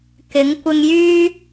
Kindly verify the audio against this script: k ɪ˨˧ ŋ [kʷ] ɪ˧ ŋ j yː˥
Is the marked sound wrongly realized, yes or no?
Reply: no